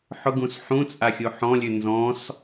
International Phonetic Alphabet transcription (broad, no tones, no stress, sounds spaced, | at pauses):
ħ ʊ ɡ ũ s ħ ũ t͡sʼ a xʲ u ħ ɔ̃ lʲ ʉ n z ɔ̃ s